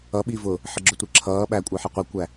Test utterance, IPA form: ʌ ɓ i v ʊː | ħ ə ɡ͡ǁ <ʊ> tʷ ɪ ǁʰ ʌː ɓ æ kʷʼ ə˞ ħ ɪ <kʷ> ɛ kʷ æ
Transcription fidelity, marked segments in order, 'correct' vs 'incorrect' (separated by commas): correct, incorrect